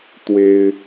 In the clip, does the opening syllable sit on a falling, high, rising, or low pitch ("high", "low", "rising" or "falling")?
high